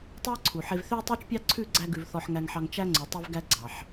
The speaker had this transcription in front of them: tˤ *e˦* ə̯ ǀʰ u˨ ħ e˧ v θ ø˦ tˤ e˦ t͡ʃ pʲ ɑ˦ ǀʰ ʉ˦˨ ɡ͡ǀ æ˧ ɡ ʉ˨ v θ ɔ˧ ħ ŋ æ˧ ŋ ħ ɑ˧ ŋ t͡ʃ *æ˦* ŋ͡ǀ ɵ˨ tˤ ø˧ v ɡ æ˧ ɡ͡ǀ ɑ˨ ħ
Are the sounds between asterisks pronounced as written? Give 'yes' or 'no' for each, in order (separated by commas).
yes, yes